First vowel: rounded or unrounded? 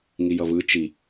unrounded